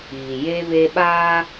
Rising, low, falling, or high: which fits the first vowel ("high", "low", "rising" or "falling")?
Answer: low